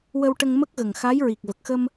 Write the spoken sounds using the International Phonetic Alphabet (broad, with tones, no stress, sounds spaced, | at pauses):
w ə˧ w ʈ ə˧ ŋ m ə˦˥ k̚ ɣ ə˨˩ ŋ x a˧˥ j ɹ i˨˩ k̚ v ə˨˩ k̚ x ə˧ m